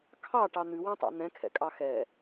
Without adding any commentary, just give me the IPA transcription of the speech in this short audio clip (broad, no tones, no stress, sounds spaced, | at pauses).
kʰ ɑ ʈ ɑ n̪ ʉ w ɛ̃ tˤ ɑ̰ n̪ ɛ̃ kʰ ɛ̰ kʼ ɑ x ɛ